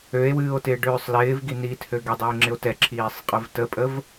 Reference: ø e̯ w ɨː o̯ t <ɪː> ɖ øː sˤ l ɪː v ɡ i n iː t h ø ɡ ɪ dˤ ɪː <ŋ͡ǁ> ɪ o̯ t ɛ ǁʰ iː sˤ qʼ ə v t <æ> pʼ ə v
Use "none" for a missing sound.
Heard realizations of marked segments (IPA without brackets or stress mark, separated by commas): ɪː, ŋ͡ǁ, ə